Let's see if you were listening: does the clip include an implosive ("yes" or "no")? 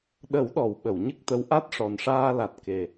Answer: yes